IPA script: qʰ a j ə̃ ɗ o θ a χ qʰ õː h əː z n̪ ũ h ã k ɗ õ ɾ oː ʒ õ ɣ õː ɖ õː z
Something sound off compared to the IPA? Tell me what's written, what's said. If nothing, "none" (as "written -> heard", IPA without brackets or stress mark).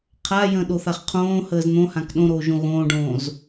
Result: ũ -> õ